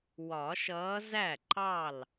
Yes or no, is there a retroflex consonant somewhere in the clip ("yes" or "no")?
no